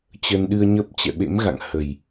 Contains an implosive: yes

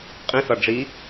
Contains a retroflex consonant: yes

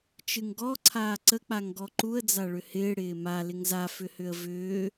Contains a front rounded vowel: yes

